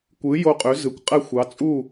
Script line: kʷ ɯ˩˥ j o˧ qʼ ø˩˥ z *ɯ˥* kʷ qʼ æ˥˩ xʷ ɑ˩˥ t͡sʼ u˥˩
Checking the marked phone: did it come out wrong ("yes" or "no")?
yes